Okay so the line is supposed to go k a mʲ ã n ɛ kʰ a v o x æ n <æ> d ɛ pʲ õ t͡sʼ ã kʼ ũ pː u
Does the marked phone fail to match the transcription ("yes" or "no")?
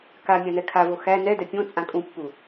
yes